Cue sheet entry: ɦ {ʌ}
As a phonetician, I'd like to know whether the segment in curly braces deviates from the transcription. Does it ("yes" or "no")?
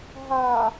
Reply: yes